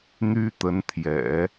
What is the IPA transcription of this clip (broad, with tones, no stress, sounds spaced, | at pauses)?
n̪ y˥ t̪ ə˧˥ n t̪ʰ j ɛ̰˨˩˦